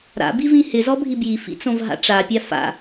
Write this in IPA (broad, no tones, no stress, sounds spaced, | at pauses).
ɾ a̰ b i v ĩ h ɪ z ɔ bʱ i b j i f ḭ t͡s õ v ɦ a̰ ʈ͡ʂ a pʲ a f a̰